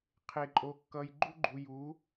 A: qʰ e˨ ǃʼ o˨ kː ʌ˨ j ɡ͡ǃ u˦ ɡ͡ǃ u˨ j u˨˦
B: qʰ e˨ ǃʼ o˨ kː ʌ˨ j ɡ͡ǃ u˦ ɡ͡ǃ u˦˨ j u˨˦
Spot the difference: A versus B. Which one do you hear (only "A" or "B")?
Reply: A